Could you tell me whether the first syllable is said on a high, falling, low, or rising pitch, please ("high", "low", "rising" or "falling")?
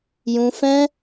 high